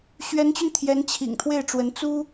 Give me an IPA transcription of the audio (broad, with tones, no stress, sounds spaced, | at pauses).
ɕ ɥ ɛ˧˥ n t͡ɕ y˧ n t̪ʰ j ɛ˧˥ n t͡ɕʰ ḭ˨˩ ŋ t̪ʰ w e˥˩ ɪ̯ ʈ͡ʂ w ə˧˥ n t͡s u˥